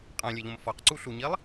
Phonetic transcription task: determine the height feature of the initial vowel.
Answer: low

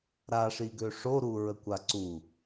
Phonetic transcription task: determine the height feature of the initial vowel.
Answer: low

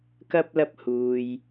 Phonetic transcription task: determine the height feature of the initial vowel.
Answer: low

